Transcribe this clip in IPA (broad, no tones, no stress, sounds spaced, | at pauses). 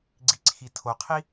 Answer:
ɡ͡ǀ i ǀʰ i tʰ o qʰ i